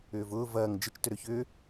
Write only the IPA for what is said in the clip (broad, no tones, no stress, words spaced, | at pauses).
ʏːvʊː vɐːŋ d͡ʒɪt͡ʃ tʏɾøçʏː